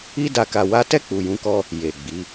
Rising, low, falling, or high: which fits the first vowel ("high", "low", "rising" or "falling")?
high